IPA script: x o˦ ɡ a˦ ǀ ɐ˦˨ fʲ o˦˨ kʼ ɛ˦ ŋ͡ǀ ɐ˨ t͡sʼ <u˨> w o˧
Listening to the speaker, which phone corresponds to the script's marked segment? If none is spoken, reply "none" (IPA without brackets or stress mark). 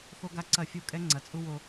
u˦